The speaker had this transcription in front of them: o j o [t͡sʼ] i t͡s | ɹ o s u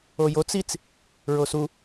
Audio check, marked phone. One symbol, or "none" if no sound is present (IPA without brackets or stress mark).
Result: t͡s